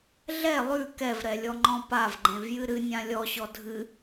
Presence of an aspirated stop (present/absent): absent